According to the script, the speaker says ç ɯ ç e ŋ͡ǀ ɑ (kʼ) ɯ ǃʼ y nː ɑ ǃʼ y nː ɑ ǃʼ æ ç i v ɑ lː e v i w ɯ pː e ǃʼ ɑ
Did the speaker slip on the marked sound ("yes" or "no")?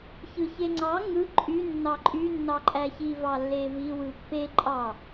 yes